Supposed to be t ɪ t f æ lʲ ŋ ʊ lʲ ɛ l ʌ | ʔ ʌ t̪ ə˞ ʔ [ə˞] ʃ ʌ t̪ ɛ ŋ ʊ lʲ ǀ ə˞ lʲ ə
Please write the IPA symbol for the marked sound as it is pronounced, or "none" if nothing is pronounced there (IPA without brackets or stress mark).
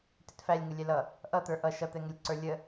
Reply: ʌ